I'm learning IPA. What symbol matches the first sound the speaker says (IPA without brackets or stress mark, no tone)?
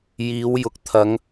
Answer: j